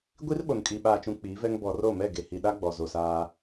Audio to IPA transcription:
ɡʷ i˦ r ɓ o˨ n kʼ i˨ ɓ aː˨ t͡ʃ ũ˨ k͡p iː˨˦ v ɛ˦ ŋ b ɔ˨ r o˦˨ m ɛ˦˨ ɡ e˨ h i˨ ɗ a˦ ɡ͡b ɔ˨ z o˨ s aː˦

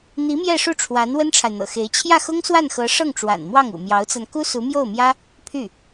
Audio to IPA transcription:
n̪ i˧˥ m j ɛ˥˧ ʂ u˥˩ ʈ͡ʂʰ w a˧˥ n w ə˥ n ʈ͡ʂʰ a˨ ɪ̯ n̪ ɤ̰˨˩ x e˧˥ ɪ̯ t͡ɕʰ j ä˥˩ x ʊ˥ ŋ s w a˥˩ n x ɤ˧˥ ʂ ɤ˥˩ ŋ ʈ͡ʂ w a̰˨˩ n m w ɑ˥˩ ŋ ṵ˨˩ m j ɑ˧˥ ʊ̯ t͡s a˧ n k u˥ s u˧˥ m j o˥˩ ʊ̯ m j ä˥ | pʰ y˥˩

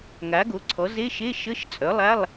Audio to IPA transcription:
ŋ a˩˥ ɡ o˩˥ ǀʰ ɔ˩˥ z e˧˥˧ ʃ e˧˥˧ ʃ ə˧˥˧ ʃ t͡sʼ œ˩˥ lˠ a˧˥˧ lˠ

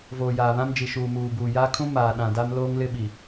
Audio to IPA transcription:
v oː˨ j aː˨ β ã˦ m d͡ʒ i˨ ʃ uː˨ m uː˨ b uː˨ j a˦ kʰ ũ˦ m aː˨ ɗ ã˨ d a˦ m l oː˦ ŋ l ɪ˦ ɓ i˨

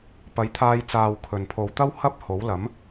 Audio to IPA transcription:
p ɐ˨˥ j t̪ʰ aː˧ j t͡s aː˨ w kʰ ɵ˨˩ n pʰ o˨ w t̪ ɐ˥ w h ɐ˥ p̚ h o˨˥ w l ɐ˨˥ m

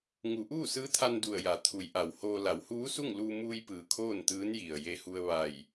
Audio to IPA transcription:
ŋ u˩˧ ʔ uː˥˨ s ɯː˧˥ t̪ʰ a˧ n d u˧˩ ə̯ j a˩ t̪ʰ u˩˧ j ʔ a˩ w h oː˧ l a˩˧ w h uː˧˥ s u˥˨ ŋ l uː˧ m uː˧ j p ɯː˩ kʰ oː˥˨ n t̪ ɯː˧˥ n j i˩ ə̯ j e˧ h u˧ ə̯ ʋ a˧˩ j

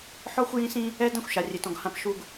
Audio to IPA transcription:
ħ ɔ˦ xʷ j ĩ˦ s ĩ˦ | ɛ˦ d ã˦ xʷ ʃ a˨ rʲ e˨ t ɔ̃˨ ɡ h ã˦˨ p ʃ u˨ ɡ

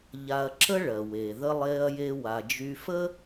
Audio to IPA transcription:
ʎ a˨ ɐ̯ ǁ ə˦ ɭ ɜ˩ w e˩ ð ə˨ lˠ e˨ ɐ̯ j e˨ w a˩ d͡ʒ y˨ f ə˥

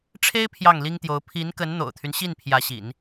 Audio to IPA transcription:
ʈ͡ʂʰ e˥ ɪ̯ pʰ j ɑ˥˩ ŋ l i˥ ŋ t̪ j o˧˥ ʊ̯ pʰ i˧˥ n k ə˧˥ n n̪ o̰˨˩ ʊ̯ t̪ʰ y˦ n ɕ i˥˩ n pʰ j ä˧˥ ɕ ḭ˨˩˦ n

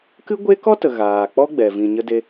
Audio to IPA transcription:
k ɨ˦ ɡʷ e˦ k ɔ˦ t ə˨ ɣ aː˨ k͡p ɔ˦ ɡ͡b ɛ˨ v ĩ˨ ɲ ə˧ d e˧

